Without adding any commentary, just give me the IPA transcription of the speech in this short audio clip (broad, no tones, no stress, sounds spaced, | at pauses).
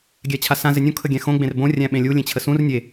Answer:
ɡʲ æ t͡ɕʰ a s ã z ɪ nʲ õ kʰ ə ɡʲ æ̃ x õ ɡ͡b ẽ r b õ rʲ æ̃ ɓ ẽ lʲ u lʲ ẽ t͡ɕʰ ə s ũ r nʲ e